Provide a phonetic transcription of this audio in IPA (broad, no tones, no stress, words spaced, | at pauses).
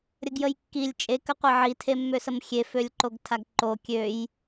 ɾʲəɡjəjkːilʲ t͡ʃʼe kəqʷeʕi tʰemːøsəmxʲe følʲǃoɡtʰaɡǃo kʲøj